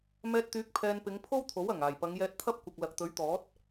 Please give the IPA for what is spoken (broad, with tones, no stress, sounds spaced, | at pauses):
m ɛː˧ t̚ t̪ yː˨˥ k̚ pʰ ɛː˧ n p ɪ˨˧ ŋ pʰ o˥ w t̪ʰ o˨˥ w ɐ˨˩ ŋ aː˨˩ j p ɐ˨˧ ŋ j ɛː˧ t̚ t̪ʰ ɐ˥ p̚ kʷ ɐ˨ k̚ l ɐ˨ k̚ t̪ ɵ˨˥ ɥ t̪ ɔː˨˥ t̚